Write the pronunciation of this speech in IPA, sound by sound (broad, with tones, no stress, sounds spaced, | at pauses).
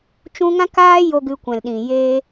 t͡ʃ ũ˧ ŋ ã˦ k aː˦ j o˦ ɡ ɨ˧ kʷ ɛ̃˨ l ɗ ĩ˨ j e˧